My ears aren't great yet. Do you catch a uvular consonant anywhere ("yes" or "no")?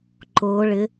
no